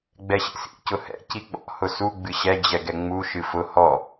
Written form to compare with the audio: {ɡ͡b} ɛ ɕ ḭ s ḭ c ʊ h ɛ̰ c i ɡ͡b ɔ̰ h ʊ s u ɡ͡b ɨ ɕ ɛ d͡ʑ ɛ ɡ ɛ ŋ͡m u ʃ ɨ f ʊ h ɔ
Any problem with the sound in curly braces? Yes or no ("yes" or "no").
no